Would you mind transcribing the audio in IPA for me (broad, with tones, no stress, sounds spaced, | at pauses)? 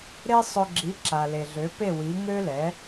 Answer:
ɾ e˥ sˤ ø˧ ɡ͡ǁ i˩˥ ǁ a˩ l e˩ ɮ ø˩˥ p e˥˩ w i˩˥ ŋ ø˥ l ɛ˩˥